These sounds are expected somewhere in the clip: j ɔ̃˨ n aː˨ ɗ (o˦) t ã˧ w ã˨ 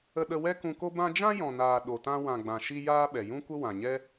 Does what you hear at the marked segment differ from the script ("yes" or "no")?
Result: yes